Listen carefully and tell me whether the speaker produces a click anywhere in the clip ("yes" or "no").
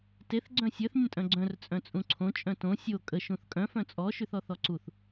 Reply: yes